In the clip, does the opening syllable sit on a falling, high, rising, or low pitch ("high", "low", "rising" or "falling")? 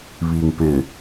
low